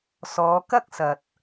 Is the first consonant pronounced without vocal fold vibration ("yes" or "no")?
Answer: yes